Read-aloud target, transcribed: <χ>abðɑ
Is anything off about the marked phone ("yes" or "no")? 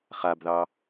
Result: no